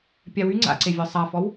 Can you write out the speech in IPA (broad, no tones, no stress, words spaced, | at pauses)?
pʲawy ŋ͡ǀa̰ǀevʲɔ sˤafɔw